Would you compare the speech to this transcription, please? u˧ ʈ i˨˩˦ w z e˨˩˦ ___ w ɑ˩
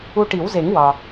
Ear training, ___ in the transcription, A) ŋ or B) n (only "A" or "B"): A